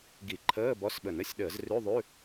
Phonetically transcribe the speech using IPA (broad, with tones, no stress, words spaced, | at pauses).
ɡi˧˩˧ǃʰəː˧˥˧ bɔ˧˥˧sɓə˧˩˧n ə˧˥˧sʲɗəː˧˩˧z rʉ˧˥˧ðˤʉ˧˥˧